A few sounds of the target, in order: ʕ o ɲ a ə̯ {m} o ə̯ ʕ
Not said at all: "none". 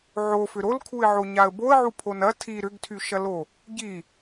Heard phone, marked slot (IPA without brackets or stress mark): b